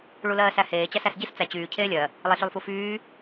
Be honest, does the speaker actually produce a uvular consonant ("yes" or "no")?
no